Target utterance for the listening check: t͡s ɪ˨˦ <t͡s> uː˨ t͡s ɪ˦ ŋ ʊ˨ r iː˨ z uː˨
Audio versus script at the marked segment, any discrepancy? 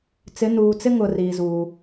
yes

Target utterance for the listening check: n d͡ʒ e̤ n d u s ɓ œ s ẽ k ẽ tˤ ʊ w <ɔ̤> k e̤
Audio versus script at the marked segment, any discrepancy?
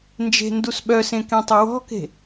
no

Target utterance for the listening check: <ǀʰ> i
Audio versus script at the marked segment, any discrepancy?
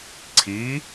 no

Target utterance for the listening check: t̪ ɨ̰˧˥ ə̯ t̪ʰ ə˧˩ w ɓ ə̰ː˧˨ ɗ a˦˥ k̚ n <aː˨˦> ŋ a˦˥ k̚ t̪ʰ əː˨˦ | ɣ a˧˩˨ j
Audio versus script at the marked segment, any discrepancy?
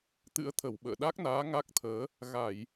no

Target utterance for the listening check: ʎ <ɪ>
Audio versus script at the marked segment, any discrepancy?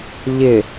no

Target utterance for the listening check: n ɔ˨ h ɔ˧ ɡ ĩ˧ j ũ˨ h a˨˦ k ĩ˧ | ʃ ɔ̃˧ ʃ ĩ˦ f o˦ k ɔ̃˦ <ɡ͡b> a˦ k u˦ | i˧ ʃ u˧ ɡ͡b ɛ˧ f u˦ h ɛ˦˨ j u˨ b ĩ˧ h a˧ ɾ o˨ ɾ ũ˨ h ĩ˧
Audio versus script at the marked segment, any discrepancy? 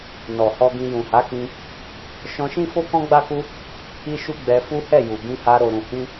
no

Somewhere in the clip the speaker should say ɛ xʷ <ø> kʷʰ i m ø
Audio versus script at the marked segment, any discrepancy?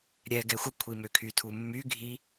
yes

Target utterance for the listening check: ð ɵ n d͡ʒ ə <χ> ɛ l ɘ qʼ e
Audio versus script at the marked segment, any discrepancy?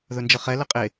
no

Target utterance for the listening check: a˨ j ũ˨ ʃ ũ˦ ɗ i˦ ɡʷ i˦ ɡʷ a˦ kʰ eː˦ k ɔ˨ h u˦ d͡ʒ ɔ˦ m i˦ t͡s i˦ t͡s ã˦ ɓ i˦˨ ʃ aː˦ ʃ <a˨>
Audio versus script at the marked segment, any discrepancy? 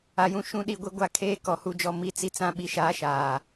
yes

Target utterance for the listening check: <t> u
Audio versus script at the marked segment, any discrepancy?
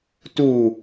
no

